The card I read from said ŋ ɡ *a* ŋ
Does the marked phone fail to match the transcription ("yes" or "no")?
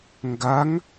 no